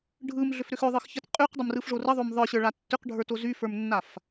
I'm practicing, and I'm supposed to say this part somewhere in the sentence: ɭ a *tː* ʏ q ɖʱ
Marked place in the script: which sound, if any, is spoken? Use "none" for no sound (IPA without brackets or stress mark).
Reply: tː